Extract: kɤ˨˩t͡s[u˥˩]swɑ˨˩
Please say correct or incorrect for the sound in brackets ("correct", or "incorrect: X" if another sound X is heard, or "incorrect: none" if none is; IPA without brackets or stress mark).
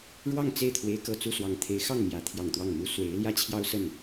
correct